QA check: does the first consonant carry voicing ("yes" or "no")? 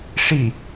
no